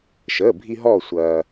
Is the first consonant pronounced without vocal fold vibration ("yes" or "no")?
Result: yes